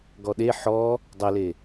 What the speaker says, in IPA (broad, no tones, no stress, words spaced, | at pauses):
ɡɔɗe ħɔ | dˤɘle